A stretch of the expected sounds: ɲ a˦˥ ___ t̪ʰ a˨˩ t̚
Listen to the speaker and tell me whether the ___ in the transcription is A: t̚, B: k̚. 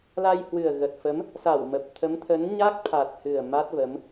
B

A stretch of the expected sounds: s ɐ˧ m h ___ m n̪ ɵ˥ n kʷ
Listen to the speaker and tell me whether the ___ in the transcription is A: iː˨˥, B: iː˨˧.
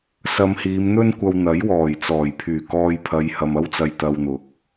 B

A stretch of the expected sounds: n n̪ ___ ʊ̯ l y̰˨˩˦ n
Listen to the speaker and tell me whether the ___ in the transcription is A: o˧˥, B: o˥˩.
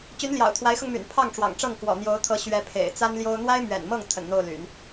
B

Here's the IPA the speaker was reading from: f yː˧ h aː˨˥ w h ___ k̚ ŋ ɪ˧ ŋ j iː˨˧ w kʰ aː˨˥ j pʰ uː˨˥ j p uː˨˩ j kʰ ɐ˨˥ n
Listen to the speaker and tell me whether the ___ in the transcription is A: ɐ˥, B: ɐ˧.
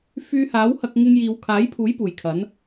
B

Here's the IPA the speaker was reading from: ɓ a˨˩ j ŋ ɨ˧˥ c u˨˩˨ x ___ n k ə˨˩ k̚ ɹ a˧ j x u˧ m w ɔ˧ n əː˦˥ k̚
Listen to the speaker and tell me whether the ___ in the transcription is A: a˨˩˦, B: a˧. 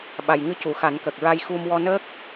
A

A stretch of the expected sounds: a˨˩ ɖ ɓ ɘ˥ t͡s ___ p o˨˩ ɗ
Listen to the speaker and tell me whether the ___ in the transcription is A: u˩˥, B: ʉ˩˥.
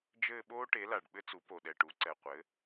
A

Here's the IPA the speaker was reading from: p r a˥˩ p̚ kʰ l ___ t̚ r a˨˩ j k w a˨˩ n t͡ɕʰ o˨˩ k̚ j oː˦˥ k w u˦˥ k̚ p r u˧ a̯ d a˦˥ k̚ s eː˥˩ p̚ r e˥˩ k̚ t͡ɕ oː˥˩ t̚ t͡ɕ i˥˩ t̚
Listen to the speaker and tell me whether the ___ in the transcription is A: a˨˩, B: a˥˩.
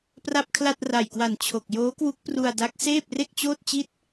B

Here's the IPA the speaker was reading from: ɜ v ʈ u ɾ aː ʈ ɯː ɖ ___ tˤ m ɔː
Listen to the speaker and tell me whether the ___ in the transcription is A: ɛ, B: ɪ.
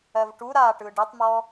A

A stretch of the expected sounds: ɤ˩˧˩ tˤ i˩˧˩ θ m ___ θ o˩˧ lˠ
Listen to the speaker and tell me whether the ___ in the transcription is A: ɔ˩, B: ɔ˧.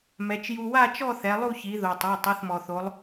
A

